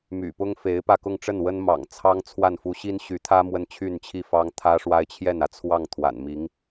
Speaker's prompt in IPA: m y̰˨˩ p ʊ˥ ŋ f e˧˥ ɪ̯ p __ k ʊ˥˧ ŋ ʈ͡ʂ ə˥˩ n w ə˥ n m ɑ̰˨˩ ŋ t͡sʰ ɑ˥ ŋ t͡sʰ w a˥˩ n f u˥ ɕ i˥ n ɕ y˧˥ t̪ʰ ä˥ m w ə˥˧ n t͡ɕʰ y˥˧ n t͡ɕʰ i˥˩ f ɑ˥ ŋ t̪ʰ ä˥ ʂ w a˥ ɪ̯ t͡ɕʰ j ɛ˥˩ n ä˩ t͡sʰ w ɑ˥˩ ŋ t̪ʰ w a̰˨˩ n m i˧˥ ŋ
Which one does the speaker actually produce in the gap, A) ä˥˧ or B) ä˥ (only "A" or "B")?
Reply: A